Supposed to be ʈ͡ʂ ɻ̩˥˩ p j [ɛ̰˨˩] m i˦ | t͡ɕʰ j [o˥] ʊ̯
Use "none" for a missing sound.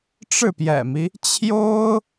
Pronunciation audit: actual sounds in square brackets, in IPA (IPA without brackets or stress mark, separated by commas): ɛ̰˨˩, o˥